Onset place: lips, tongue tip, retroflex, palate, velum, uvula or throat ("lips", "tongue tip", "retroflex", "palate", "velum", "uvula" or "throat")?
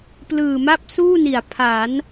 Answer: lips